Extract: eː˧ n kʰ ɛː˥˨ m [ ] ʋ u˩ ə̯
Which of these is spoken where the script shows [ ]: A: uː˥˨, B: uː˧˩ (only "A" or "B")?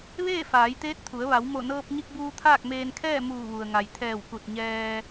B